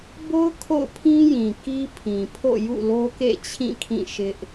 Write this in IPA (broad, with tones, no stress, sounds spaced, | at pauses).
b o˦ ʊ̯ kʰ o̰˦˨ ʊ̯ pʰ ĩ˦ j ĩ˨ k i˦ pʰ ĩ˨ pʰ o̰˦˨ j ṵ˦˨ l o˦ k ḛ˦˨ t͡ɕʰ ĩ˦˨ kʰ ĩ˦˨ ʃ ɪ˦ ʔ